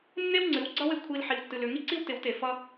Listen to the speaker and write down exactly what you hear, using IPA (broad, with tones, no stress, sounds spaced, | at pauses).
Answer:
nː e˦ w ŋ͡ǀ ɨ˨˦ w ɡ͡ǀ ʌ˦ w e˨ kʷʰ i˧ l ħ i˨ w tː ɨ˨ l ʏ˨ ŋ i˦ ǀ i˦ w t ɪ˨˦ w t e˨ f ʌ˧